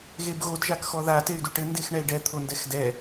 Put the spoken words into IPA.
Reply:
ɣebɣod ʒakxɔða tey̯duʈɘ ndexɳɛi̯ɖɛ t̪ʰondɛxdɛ

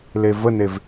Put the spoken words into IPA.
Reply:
levənev

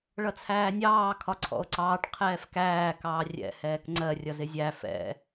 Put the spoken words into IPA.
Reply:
ɭʌt͡sʰæːnʲɑː kʰɒǀʰɔ̰o̯ǀɑːʈ qʰɛːfkæː kɑːrʲɛ̰ hɛːkŋ͡ǀɜ rʲʌzɪzʲæ fɛ̰

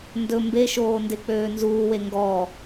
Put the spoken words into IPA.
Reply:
ndɵ mbeʃoː ndek͡pøːnzuːwe ŋɡɔ

